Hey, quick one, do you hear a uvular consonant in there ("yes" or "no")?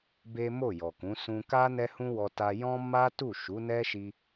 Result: no